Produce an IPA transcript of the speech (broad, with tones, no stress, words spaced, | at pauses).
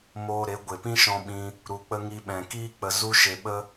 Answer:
moː˧ ɾe˨˦ ɡʷe˨pĩ˦ʃɔ̃˧ ɓĩ˧ | ɾu˧k͡pə˦ ŋi˧ɓɛ̃˨kiː˦k͡pə˧ zu˦ʃe˧ɓə˦